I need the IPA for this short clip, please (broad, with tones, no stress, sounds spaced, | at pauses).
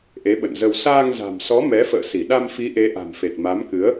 ʔ e˨˦ ɓ ə̰˧˨ n z ə˧ w s aː˧ ŋ z a̤˨˩ m s ɔ˨˦ m ɛ˨˦ f ə̰ː˧˨ s i˧˩ ɗ a˧ m f i˨˦ ʔ e˨˦ ʔ a̤˨˩ m f e˨˩ t̚ m a˨˦ m k ɨ˨˦ ə̯